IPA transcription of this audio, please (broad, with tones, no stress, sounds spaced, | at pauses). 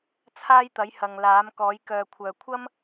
t͡sʰ aː˥ j t̪ ɐ˨˥ j h ɐ˨ ŋ l aː˨˥ m k ɔː˨˥ j k œː˨ kʷʰ œː˨ kʷʰ ɐ˥ m